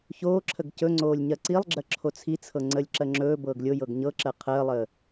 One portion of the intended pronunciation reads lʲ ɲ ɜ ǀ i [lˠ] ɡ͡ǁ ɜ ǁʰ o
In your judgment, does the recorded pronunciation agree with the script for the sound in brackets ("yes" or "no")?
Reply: yes